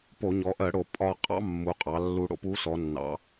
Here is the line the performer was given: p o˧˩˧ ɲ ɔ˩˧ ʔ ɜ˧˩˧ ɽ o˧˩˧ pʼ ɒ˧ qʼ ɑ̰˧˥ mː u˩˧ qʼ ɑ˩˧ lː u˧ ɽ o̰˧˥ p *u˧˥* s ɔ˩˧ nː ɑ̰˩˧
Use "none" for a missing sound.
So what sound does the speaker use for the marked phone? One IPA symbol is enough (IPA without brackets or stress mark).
u˧˥